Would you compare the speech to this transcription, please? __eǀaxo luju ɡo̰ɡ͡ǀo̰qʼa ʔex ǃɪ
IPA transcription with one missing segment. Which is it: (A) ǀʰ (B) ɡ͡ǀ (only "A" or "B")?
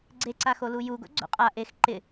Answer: B